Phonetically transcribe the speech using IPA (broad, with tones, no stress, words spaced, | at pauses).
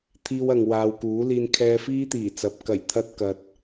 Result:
t̪ʰiː˥wɐ˧ŋwaː˧w kuː˨˥liː˧nkʰɛː˧fiː˥ t̪iː˨˩t͡sɐ˨p̚ kɐ˨˩jt̪ʰɐ˧t̚ kɐ˨t̚